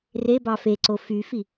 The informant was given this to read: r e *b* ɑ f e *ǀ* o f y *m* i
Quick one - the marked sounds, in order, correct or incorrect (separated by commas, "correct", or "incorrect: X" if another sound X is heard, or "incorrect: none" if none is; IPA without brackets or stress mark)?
correct, correct, incorrect: f